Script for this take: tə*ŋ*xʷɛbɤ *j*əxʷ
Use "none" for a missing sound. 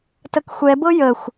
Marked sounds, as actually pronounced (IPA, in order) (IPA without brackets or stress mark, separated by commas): k, j